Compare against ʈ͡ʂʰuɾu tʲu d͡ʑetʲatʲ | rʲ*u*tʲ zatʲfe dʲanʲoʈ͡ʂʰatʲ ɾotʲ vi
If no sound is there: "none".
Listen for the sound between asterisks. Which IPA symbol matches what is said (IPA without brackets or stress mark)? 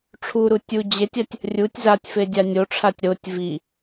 u